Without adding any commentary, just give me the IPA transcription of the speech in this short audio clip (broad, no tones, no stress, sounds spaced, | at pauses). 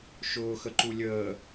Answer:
ʃ ʊː x ə ǃ u lʲ əː